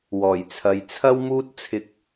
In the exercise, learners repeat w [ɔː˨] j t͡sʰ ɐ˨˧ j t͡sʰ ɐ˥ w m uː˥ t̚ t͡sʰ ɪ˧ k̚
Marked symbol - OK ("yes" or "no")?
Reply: no